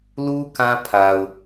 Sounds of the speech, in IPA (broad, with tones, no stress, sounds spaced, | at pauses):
l u˦ k ã˦ pʰ a˨ ʊ̯